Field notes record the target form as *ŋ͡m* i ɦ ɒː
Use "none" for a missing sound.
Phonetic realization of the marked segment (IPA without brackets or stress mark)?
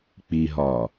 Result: k͡p